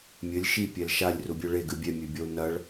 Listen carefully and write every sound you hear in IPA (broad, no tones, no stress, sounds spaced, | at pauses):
mʲ ɘ lʲ ʃ i pʲ ɛ l ʃ a lʲ r u bʲ o ɭ e ɡ ɨ bʲ ɛ mʲ ɘ bʲ ɔ u̯ n ɐ ɭ